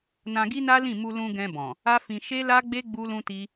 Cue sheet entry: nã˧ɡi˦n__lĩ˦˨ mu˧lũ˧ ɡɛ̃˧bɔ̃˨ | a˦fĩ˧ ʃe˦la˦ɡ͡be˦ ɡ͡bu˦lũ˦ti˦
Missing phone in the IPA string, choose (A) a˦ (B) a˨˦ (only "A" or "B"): A